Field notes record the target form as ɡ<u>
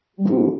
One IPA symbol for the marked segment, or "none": ṵ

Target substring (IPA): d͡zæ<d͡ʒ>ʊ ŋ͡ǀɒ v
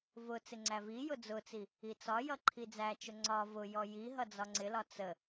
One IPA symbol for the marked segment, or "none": t͡ʃ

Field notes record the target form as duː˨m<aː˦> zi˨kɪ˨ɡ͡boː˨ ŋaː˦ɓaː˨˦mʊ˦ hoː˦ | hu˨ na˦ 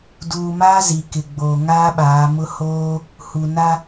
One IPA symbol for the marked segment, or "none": aː˦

